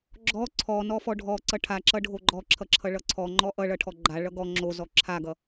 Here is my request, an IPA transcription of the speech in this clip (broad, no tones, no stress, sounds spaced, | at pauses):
ɡ͡ǁ ɔ ǀʰ ɔ n ɔ f ɔ ɖʱ ɔ ǀ ʌ ʈʰ a ǁ ʌ ɖʱ o ɡ͡ǃ ɔ ǁʰ ʌ ǁʰ ʌ ɭ ʌ ǀʰ ɔ ŋ͡ǃ ɔ ʔ ʌ ɭ ʌ ʈʰ ɔ ɡ͡ǃ a ɭ ʌ ɡ ɔ ŋ͡ǁ o z ɔ ǁʰ a ɡ ʌ